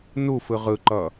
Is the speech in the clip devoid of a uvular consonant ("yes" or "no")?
no